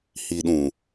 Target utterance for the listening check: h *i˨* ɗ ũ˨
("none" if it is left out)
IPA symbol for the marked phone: i˨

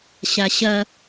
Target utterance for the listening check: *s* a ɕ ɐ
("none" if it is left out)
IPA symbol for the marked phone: ɕ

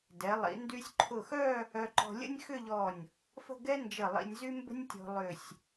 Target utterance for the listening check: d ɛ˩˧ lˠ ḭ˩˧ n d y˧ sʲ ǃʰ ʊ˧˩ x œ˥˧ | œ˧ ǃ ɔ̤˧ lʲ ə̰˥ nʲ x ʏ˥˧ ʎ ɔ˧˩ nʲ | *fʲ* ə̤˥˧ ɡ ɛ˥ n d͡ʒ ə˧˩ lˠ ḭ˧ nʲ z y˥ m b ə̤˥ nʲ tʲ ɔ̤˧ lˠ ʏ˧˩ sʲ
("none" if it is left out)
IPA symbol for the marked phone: f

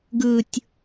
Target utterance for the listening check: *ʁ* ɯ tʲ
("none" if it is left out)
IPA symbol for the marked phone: ɡ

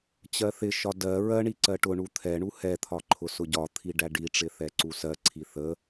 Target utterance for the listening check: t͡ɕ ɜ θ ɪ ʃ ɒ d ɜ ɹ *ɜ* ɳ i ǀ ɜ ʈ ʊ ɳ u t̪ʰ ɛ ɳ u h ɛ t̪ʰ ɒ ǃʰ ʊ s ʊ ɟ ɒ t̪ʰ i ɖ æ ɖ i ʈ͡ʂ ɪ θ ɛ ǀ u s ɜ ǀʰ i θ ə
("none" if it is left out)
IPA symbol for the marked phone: ɜ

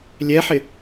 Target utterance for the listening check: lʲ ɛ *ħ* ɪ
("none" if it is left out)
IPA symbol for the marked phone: ħ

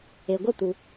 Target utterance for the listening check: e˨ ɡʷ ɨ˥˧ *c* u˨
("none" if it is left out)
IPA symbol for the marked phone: t̪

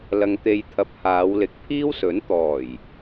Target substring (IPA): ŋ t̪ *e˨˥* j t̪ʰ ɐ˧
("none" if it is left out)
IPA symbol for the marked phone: e˧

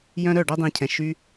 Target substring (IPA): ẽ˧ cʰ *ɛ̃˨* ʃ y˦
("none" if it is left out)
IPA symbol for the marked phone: ɛ̃˨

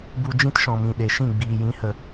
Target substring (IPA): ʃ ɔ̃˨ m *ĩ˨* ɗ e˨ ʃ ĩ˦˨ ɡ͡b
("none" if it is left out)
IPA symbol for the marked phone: ĩ˨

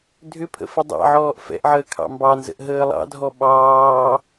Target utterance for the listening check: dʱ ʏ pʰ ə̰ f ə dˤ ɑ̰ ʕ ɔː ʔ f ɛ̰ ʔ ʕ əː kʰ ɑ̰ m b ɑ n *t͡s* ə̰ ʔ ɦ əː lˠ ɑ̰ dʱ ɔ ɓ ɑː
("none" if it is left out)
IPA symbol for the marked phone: z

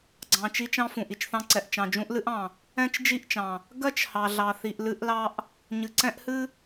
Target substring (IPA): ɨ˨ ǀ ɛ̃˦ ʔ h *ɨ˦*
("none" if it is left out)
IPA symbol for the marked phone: ɨ˦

